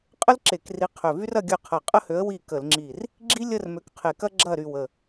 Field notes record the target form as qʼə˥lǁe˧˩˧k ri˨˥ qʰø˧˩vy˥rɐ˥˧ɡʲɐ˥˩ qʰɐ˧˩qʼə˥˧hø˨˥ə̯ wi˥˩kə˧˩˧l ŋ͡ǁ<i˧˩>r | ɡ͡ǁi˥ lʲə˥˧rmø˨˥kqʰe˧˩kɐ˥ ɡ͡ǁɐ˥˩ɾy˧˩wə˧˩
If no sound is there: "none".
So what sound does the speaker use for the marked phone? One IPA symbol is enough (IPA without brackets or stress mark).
i˧˩